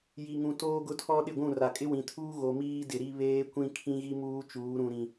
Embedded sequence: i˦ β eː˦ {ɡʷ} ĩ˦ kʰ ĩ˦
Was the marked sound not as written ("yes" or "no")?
yes